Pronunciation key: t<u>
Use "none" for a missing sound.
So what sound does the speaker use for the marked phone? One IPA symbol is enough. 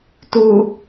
u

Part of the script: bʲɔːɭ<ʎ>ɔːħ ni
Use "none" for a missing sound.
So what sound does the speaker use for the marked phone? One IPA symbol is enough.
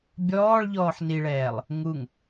ʎ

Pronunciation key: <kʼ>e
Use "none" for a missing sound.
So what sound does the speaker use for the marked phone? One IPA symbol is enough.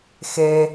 x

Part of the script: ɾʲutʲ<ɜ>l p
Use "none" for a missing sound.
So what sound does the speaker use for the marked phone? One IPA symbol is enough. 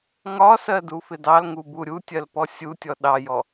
ɜ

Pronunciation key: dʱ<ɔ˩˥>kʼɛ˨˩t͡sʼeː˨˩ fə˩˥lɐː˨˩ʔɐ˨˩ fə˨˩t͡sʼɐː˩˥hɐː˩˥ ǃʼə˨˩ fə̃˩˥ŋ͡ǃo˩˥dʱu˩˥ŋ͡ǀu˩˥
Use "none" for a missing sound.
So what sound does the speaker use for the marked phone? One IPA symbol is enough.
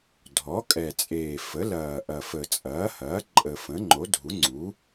ɔ˩˥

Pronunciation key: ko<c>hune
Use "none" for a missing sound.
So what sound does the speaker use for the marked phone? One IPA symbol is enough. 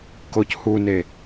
c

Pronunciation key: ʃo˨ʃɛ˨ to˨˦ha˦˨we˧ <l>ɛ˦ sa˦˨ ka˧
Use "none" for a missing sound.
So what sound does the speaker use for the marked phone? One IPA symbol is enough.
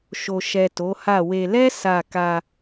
l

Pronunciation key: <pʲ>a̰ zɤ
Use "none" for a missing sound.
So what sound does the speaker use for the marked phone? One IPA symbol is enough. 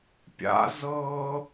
pʲ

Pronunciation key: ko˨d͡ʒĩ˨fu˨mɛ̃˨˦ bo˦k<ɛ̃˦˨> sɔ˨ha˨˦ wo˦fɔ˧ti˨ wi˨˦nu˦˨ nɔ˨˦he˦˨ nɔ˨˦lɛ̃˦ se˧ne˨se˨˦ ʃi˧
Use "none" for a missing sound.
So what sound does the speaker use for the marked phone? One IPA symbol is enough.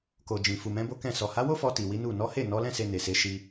ɛ̃˦˨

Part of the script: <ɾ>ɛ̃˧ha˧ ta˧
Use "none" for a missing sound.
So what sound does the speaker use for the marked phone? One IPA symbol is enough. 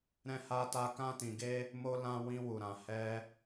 ɾ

